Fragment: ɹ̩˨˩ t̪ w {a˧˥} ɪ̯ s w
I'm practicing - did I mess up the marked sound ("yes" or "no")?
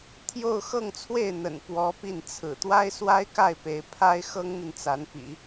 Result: yes